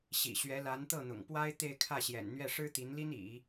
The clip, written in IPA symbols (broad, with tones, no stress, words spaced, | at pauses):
ɕḭ˨˩ɕɥɛ˧˥la˧˥n t̪ɤ˥˩n̪ʊ̰˨˩ŋpwa˥ɪ̯ t̪e˥˧ɪ̯kʰä˥˩ɕjɛ̰˨˩nn̪ɥɛ˥˩ ʂɻ̩˥t̪i˧˥nli˥n ḭ˨˩˦